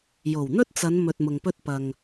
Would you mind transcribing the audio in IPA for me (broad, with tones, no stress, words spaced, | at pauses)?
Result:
jo˨˩wn̪ɵ˥t̚t͡sɐ˨˧n mɵ˨t̚mʊ˨ŋpɵ˧t̚pɐ˨ŋ